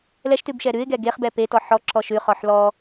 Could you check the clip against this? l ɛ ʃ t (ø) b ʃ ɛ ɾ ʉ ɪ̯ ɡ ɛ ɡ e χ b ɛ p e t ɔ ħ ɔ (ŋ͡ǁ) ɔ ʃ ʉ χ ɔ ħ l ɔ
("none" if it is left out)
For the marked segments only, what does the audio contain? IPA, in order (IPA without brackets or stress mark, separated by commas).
ʉ, ǁ